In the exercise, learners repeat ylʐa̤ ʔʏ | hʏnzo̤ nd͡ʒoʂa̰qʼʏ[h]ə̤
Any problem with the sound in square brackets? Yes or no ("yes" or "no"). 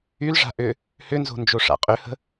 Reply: no